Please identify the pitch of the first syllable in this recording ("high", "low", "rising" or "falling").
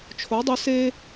rising